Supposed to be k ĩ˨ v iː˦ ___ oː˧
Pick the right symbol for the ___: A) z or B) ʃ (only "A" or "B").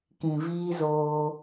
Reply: A